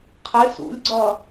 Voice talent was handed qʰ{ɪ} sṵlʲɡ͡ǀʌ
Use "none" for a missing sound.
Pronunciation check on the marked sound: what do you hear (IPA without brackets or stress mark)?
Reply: ɪ